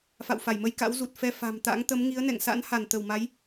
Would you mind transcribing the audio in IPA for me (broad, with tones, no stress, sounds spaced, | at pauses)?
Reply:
f a̰˧˨ w f a˧˩ j m ə˧ j k a̰˧˥ w z u˨˩ t̚ f ɛ˧ f a̤˨˩ m t̪ a̰˧˥ ŋ t̪ ə˨˦ m ŋ i˨˦ ə̯ n ɛ̰˧˨ ŋ s a̰˧˥ n h a˧˩ n t̪ ə˧˩ w m a˨˦ j